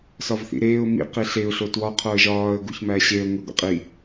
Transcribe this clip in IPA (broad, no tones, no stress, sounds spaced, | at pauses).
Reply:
s ɒ v θ ḭ ɾ eː ʊ̯ m ḭ q i ɬ e ʊ̯ ɬ o t w ɒ qʰ o ə̯ ʒ ɒː ə̯ ɡ u ç m æː ɕ e ə̯ ŋʷ e ɡʷ ḛ qʼ i